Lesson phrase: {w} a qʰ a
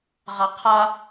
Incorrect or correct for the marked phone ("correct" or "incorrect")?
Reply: incorrect